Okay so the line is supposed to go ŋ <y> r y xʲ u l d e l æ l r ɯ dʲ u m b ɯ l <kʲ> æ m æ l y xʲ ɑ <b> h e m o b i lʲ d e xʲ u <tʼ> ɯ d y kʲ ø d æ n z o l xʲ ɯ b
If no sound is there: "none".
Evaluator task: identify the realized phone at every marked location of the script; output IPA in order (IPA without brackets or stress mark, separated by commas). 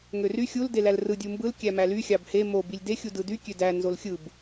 ø, kʲ, b, d